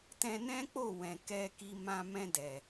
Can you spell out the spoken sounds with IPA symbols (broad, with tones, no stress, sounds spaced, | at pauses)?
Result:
t ɛ̃˧ n ɛ̃˦ k͡p o˦˨ w ɛ̃˨ k ɛ˧ k i˧ m ã˧ m ɛ̃˧ d ɛ˨